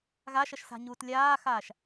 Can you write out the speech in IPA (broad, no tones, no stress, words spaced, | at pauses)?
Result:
ɣaʃɐʃsa̤ɲuːt lʲaːxaːʃ